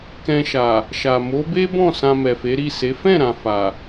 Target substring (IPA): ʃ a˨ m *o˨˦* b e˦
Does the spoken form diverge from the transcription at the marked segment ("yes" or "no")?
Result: no